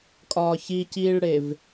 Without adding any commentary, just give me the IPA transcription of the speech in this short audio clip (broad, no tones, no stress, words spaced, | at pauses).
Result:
kʼɒːçiciːɭɽev